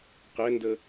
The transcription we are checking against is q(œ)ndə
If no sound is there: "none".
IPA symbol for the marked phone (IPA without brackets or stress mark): ɛ